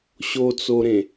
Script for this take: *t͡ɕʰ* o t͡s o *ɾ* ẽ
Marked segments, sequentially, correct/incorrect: incorrect, correct

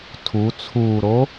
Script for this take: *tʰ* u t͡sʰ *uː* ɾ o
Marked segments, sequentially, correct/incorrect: correct, correct

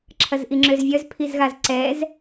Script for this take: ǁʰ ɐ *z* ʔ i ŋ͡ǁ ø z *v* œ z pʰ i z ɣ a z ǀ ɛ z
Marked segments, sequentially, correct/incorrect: correct, incorrect

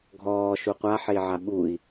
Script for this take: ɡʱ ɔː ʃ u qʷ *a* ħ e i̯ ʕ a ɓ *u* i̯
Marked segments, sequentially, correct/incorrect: correct, correct

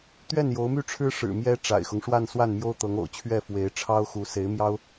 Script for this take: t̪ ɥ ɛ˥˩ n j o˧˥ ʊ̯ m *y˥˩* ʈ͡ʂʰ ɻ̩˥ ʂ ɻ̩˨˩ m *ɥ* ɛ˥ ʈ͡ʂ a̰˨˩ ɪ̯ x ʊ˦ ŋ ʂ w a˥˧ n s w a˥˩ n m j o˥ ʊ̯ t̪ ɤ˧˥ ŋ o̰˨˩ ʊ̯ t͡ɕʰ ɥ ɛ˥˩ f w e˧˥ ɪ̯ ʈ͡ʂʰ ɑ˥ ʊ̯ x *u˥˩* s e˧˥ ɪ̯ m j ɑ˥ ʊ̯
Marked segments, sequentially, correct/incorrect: correct, incorrect, incorrect

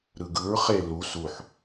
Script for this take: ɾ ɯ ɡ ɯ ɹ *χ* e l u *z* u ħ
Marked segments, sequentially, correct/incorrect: correct, incorrect

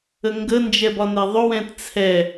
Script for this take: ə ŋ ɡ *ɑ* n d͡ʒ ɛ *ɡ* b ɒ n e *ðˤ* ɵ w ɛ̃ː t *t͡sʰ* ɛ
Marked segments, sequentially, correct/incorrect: incorrect, incorrect, correct, correct

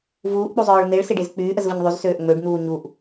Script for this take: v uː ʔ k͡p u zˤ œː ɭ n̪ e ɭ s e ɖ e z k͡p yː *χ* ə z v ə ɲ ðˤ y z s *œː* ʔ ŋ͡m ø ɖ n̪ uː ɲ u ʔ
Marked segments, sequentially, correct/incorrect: incorrect, incorrect

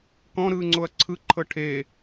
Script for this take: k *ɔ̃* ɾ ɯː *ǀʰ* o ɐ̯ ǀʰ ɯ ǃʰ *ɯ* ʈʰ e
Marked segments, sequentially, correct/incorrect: correct, incorrect, incorrect

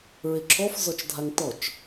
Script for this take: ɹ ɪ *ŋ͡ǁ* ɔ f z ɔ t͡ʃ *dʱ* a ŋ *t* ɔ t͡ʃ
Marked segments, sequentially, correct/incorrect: incorrect, correct, correct

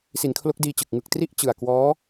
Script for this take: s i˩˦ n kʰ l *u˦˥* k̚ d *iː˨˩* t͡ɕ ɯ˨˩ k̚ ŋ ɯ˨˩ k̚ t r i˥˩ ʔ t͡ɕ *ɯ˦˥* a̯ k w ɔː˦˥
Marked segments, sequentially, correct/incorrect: incorrect, incorrect, incorrect

